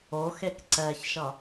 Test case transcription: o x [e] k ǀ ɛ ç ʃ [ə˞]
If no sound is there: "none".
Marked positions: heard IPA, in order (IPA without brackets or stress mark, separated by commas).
e, ʌ